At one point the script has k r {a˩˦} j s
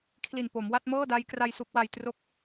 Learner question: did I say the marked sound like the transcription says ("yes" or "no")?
no